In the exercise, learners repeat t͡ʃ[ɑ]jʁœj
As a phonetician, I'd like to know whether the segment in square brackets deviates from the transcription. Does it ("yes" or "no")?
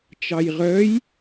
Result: no